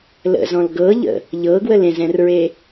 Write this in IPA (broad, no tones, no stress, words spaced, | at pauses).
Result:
lə̰zɔ̃l ɡɤʎə̰ | ʎɤɡwəl ẽzɛ̃rɹe